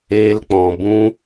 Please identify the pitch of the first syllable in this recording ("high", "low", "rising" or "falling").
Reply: high